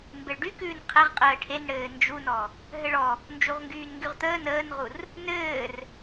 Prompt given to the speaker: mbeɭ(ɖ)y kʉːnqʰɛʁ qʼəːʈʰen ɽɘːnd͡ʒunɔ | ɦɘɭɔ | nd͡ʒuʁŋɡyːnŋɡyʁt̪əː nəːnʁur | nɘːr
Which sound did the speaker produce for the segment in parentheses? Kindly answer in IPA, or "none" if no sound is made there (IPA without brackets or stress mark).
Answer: ɖ